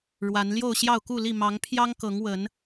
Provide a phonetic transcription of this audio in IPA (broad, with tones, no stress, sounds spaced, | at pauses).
ɻ w a˨˦ n l j o˥˨ ʊ̯ ɕ j ɑ˥˨ ʊ̯ k u˥˨ l i˥˨ m ɑ˨˦ ŋ pʰ j ɑ˦ ŋ k ɤ˨˦ ŋ w ə˨˦ n